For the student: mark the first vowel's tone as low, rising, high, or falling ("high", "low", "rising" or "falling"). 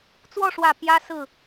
falling